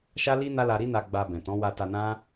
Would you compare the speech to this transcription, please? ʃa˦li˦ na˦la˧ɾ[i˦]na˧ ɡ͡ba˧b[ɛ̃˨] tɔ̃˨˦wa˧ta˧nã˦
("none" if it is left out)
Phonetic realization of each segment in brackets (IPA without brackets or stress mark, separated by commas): i˦, ɛ̃˨